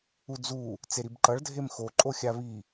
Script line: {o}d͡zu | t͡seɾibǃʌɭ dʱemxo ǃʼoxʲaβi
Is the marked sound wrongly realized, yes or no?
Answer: yes